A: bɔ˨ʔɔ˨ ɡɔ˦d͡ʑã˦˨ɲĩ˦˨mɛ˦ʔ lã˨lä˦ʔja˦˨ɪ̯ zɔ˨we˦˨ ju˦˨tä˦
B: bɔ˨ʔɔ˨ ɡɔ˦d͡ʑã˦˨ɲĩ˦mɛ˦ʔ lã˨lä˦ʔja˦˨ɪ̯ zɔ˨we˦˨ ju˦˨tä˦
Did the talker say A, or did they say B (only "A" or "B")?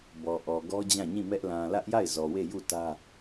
A